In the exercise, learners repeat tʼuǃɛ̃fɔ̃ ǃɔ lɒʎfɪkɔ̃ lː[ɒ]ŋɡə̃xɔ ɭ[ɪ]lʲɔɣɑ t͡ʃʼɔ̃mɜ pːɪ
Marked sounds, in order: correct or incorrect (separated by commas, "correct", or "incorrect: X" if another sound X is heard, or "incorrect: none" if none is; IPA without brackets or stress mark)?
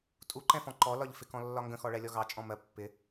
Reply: correct, incorrect: ɛ